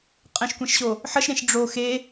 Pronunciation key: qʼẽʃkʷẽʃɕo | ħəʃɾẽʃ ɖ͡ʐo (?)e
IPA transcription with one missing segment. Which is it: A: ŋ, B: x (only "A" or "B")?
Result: B